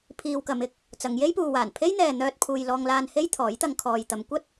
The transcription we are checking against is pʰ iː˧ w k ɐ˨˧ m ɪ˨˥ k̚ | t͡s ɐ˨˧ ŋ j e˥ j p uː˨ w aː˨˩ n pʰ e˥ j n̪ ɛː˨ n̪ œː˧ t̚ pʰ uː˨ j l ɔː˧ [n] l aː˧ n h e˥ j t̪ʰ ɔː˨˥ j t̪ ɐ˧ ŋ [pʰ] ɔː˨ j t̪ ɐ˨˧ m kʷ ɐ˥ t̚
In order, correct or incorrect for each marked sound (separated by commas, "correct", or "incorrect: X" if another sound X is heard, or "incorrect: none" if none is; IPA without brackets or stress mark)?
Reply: incorrect: ŋ, incorrect: kʰ